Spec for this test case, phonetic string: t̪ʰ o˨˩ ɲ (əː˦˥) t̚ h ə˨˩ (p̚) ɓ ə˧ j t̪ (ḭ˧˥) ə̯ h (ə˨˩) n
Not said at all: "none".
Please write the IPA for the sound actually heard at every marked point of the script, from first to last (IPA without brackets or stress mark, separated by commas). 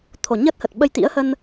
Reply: əː˦˥, t̚, ḭ˧˥, ə˧